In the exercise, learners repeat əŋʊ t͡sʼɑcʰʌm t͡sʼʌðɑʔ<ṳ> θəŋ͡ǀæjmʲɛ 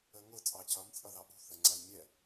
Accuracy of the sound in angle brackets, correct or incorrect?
correct